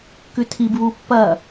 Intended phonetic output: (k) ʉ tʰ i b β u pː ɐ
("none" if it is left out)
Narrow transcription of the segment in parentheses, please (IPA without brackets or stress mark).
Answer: k